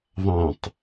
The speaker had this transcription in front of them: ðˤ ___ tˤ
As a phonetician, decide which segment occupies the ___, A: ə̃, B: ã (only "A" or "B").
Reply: B